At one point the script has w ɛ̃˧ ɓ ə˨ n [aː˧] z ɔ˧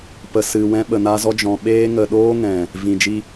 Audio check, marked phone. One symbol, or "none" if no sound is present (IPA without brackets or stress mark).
a˧